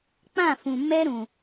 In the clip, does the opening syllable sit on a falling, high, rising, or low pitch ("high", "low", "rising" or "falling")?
falling